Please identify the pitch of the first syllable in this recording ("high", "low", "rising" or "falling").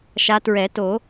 rising